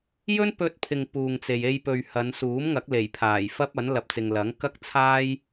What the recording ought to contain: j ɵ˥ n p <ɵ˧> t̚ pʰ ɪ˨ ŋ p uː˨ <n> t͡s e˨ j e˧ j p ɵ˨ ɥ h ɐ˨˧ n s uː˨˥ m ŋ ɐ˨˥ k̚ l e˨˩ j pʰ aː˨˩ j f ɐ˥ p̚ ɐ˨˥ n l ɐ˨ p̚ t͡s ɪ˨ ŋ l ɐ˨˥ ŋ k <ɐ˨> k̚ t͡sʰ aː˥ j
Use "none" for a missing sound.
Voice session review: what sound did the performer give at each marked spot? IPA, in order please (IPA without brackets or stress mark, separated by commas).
ɵ˧, ŋ, ɐ˥